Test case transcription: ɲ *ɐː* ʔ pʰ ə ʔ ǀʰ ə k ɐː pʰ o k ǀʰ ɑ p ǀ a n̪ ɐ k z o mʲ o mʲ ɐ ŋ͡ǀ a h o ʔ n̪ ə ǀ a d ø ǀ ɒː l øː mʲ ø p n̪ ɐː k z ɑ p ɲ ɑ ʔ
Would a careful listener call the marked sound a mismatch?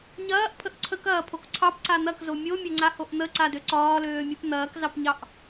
no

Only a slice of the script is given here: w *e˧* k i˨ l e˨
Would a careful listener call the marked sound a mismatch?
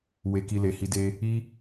yes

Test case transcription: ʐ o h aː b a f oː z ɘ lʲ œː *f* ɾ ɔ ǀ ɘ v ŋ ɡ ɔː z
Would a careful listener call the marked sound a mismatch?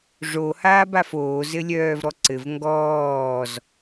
yes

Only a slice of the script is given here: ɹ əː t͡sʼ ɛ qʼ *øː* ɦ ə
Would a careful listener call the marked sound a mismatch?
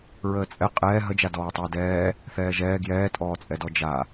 yes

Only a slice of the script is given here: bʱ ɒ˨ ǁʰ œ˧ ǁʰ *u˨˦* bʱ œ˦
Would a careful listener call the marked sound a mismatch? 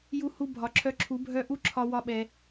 no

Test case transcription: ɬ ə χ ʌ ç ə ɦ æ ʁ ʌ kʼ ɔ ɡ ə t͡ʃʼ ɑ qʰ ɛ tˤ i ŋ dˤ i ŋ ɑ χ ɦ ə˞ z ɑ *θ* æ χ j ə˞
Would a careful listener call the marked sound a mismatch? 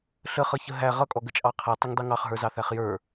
no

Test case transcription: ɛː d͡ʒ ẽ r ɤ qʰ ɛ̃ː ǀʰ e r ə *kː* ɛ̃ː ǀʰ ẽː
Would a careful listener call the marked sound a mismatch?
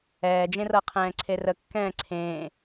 no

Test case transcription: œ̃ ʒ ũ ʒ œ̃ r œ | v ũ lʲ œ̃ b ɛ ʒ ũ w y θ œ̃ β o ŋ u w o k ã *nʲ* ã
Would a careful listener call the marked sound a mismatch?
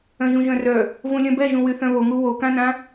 yes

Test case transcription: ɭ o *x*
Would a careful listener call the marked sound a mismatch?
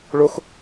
no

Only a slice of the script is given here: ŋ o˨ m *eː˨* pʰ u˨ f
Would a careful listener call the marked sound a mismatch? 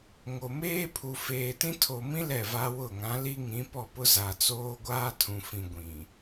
yes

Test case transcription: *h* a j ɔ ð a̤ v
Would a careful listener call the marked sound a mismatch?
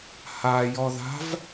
no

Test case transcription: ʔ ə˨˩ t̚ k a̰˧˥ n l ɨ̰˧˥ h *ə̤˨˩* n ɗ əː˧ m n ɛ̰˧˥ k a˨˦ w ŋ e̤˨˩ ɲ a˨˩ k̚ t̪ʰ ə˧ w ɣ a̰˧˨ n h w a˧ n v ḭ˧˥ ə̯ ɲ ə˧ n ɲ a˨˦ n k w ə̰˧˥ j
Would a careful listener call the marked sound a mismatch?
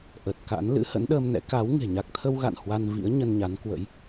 yes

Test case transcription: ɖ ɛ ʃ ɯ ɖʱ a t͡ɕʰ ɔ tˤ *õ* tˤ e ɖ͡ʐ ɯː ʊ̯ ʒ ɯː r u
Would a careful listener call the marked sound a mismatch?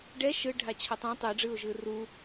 no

